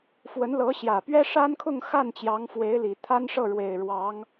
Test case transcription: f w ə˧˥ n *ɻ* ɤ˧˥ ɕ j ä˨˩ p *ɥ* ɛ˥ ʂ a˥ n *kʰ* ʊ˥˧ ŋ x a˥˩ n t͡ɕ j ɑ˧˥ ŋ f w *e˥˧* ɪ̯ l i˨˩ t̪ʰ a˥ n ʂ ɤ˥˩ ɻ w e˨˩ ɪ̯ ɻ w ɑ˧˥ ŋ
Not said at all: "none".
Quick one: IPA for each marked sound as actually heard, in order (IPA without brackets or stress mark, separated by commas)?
l, ɥ, kʰ, e˧˥